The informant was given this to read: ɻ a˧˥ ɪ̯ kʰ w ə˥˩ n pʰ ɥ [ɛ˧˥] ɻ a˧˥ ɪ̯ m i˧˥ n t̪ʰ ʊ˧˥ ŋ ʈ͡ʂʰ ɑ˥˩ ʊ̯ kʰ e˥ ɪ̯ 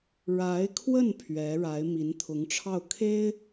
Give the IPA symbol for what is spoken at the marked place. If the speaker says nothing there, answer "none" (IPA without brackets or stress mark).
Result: ɛ˧˥